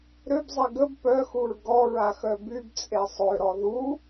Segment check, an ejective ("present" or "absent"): present